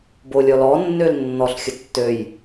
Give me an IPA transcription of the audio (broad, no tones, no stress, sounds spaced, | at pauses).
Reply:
b o lʲ ɔ l ɔ nː ø l nː ɔ ɬ xʲ ə tː ø j